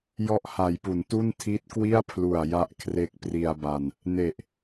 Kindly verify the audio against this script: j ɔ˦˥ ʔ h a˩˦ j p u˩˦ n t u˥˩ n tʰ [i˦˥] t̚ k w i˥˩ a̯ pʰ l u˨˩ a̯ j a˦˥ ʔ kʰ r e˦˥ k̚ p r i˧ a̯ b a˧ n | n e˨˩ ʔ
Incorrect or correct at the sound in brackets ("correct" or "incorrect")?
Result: correct